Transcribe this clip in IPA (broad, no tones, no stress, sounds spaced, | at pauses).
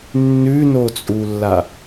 nː ʉ n o t͡sʼ u lː a